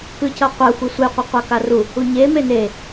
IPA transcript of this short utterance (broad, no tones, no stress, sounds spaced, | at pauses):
k ɯ c ʌ qʷ a xʷ i sʷ e qʷ e qʷ a k a r u | u ɲ e m e n e